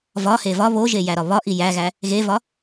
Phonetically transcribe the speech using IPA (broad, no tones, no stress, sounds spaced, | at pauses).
v ɒ h e v ɒ β o ʒ e j æ ɾ ɒ β ɒ ʔ i j æ ɣ æ | ɣ e v ɒ